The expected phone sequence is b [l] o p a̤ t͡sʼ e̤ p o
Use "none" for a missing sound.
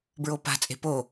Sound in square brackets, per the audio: ɹ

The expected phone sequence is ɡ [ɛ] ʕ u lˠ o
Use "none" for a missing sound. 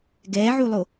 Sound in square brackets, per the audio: ɛ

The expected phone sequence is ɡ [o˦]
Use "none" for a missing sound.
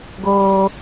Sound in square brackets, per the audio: oː˦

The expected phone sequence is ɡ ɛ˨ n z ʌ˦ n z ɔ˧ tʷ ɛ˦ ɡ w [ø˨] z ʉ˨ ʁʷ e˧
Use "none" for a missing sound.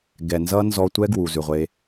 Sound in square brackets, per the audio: u˨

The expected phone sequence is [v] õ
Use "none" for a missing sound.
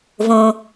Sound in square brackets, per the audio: v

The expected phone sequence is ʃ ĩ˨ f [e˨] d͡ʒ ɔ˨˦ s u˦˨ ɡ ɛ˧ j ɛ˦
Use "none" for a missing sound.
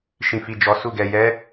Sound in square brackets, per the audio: i˨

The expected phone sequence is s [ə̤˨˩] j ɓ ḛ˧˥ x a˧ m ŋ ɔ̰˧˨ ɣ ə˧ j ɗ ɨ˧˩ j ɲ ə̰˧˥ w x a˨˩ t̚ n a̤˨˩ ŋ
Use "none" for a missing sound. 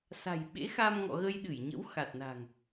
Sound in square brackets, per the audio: a̤˨˩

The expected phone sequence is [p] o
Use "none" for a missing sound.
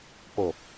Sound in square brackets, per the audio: p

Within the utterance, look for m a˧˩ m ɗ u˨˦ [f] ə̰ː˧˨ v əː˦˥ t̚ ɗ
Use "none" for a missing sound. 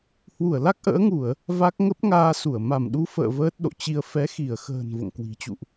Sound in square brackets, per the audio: f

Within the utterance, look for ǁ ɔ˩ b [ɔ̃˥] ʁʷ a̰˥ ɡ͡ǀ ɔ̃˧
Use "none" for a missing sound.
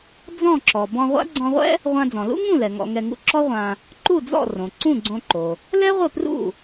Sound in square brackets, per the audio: ɔ̃˧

